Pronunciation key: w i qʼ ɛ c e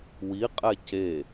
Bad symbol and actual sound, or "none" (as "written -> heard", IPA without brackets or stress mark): none